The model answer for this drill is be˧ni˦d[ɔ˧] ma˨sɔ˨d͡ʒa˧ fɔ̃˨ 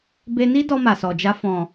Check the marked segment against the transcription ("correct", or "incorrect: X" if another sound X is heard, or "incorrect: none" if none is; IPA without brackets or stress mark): correct